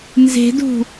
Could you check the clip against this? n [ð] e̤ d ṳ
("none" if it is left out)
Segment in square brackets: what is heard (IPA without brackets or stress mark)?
z